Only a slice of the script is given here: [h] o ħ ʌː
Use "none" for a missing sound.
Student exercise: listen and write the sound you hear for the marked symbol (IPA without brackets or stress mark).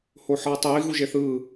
h